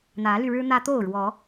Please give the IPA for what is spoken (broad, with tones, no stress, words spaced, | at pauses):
n̪ä˨˦ly˧ɻɻ̩˦ n̪ä˦ t̪o˥˨ʊ̯ɻwɔ˨˦